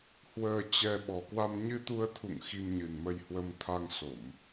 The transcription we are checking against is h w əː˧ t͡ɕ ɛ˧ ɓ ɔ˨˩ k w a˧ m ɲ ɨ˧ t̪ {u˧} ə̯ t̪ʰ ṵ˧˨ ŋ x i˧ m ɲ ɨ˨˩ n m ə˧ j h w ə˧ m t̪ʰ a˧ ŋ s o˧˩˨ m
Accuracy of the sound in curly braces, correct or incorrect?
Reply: correct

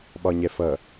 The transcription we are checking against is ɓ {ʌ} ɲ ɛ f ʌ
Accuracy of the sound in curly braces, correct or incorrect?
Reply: incorrect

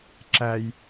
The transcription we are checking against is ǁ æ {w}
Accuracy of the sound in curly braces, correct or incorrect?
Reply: incorrect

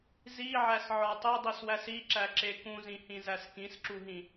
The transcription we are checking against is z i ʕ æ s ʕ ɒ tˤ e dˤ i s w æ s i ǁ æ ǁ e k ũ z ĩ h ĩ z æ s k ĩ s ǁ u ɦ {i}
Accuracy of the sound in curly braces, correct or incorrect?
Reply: incorrect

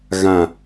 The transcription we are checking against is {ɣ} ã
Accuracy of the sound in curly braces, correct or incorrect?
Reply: correct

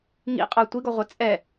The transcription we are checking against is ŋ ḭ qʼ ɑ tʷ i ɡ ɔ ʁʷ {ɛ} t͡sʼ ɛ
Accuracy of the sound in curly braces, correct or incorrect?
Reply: correct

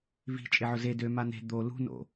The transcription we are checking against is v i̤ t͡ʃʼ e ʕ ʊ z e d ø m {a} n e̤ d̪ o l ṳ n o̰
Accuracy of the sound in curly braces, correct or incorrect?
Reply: correct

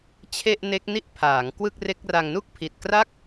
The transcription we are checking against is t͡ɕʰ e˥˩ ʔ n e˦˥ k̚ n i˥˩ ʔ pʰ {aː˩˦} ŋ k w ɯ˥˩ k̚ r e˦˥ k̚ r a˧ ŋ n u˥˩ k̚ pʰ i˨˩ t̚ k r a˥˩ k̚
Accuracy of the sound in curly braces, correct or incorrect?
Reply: correct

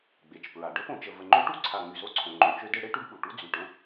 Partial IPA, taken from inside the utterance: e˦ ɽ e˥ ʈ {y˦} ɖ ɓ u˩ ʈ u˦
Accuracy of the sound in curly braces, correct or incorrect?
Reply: correct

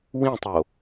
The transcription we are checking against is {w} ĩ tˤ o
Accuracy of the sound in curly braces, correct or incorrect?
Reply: correct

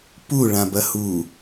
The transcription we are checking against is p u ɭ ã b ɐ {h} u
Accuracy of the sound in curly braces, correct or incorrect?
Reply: correct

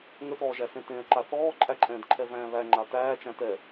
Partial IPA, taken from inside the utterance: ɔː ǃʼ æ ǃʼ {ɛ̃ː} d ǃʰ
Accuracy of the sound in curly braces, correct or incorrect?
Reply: correct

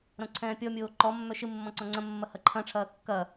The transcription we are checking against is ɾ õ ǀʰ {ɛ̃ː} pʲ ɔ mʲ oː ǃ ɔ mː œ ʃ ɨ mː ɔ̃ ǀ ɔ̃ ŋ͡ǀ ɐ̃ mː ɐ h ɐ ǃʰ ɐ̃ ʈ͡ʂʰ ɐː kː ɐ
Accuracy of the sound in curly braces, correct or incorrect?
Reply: correct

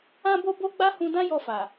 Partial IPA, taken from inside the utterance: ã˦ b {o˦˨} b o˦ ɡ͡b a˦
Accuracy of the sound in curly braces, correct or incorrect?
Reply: incorrect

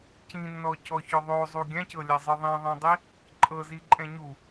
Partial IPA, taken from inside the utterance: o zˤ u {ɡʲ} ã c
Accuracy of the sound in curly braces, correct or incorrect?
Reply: correct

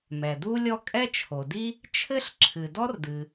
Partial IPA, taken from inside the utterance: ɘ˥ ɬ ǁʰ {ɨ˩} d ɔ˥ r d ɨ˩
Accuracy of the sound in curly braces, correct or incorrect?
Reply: correct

